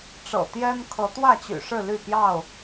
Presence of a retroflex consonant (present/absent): present